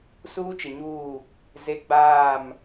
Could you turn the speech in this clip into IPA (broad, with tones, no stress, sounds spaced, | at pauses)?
s uː˦ t͡ʃ ɪ˨ ɲ uː˦˨ | z e˦ ɡ͡b aː˦˨ m